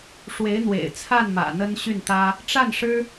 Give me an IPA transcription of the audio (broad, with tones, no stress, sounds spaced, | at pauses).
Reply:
ʂ w e˧˥ ɪ̯ n̪ w ḛ˨˩ ɪ̯ t͡sʰ a˥˩ n m ä̰˨˩ n̪ ə˥ n ɕ y˥˩ n t̪ ä˥ | ʈ͡ʂ a˥˩ n ʂ ɻ̩˥